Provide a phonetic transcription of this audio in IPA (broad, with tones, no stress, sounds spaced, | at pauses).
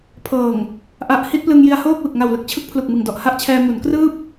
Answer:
pʰ ɤː˨˩ ŋ | ʔ a˨˩ ʔ h i˥˩ t̚ p l ɯ˧ ŋ j i˧ a̯ h oː˥˩ k̚ w ɯ˨˩ k̚ ŋ a˨˩ w l ɯ˦˥ k̚ t͡ɕʰ ɯ˥˩ k̚ pʰ l u˨˩ k̚ m ɯ˨˩ ŋ d ɔ˨˩ ʔ h a˥˩ ʔ t͡ɕʰ ɛː˧ m u˩˦ n k r ɯː˥˩ p̚